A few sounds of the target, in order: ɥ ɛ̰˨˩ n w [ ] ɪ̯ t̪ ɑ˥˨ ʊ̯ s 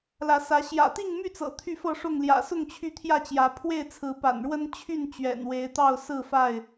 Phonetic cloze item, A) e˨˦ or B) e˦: A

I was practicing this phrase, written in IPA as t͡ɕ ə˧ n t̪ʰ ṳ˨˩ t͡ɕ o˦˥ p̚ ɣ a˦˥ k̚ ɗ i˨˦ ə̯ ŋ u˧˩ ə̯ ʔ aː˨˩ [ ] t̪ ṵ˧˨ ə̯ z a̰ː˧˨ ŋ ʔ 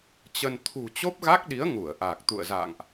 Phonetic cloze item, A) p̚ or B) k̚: B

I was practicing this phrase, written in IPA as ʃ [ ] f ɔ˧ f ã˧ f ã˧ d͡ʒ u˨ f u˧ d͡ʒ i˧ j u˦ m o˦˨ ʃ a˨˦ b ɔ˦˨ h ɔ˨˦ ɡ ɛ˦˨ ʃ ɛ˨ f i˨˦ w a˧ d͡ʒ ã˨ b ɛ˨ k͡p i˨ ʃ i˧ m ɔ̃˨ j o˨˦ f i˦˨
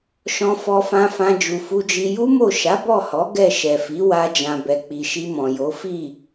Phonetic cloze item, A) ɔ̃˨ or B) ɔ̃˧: B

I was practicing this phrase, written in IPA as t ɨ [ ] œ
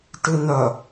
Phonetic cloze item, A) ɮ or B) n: B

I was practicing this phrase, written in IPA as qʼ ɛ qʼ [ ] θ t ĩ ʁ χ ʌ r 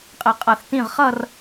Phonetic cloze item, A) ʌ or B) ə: A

